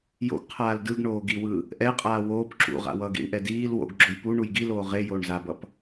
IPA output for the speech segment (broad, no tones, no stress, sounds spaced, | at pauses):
j o̰ ɡ qʰ aː l d ɯ ɡ ɳ oː ɡ i w ɯ | ʔ ɛ qʼ aː w oː p ǁ ṵ ʁ a̰ w ʌː ɡ ḭ ɳ ʔ ɛ d iː l w o̰ ɡ ɡ͡ǁ o j p u ɳ u j ɡ i l oː ʁ e j oː ɳ z a b ʌ p